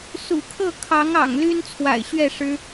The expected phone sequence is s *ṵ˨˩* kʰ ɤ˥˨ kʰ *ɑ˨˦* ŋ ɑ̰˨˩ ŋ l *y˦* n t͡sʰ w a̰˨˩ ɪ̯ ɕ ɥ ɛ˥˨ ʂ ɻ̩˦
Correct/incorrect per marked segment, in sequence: correct, correct, correct

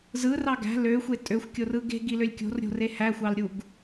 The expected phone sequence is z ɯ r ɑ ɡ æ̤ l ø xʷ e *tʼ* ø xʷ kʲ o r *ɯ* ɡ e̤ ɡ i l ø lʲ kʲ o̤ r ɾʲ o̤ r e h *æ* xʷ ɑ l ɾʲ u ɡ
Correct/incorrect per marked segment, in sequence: correct, correct, correct

